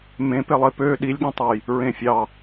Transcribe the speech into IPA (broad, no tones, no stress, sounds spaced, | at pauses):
m ẽ p e lˠ e p ø ɗ i lʲ ɠ ɑ̃ tˤ o j | ɹ ẽ fʲ ɑ